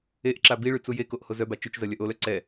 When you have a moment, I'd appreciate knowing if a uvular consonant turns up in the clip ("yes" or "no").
no